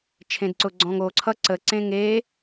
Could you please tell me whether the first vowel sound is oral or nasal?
nasal